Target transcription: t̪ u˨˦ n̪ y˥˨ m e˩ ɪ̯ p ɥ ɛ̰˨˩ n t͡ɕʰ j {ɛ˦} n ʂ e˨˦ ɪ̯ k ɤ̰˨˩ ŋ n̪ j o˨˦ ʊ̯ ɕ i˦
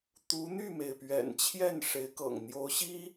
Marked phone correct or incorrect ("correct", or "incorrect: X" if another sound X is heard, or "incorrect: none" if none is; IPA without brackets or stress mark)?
incorrect: ɛ˥˨